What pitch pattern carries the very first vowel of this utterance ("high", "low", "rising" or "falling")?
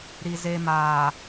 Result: low